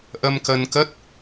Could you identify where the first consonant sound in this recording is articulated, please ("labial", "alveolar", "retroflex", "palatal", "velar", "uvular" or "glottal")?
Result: glottal